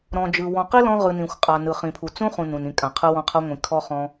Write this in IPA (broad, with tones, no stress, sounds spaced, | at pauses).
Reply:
ɾ ɔ̃˨ d͡ʒ ɯ˨ w ɔ̃˨ q i˦ l ɔ̃˧ ʁ ɯ˨ n ĩ˨ xʷ qʼ a˨ n ɯ˨ χ ĩ˨ pʰ u˨ t͡s ũ˦ χ ũ˨ n ũ˨ n ĩ˨ kʼ ã˨ qʰ ɯ˧ w ɔ̃˧ qʰ ɤ˧ ŋʷ ĩ˨ kʰ ɔ˧ χ ɔ̃˧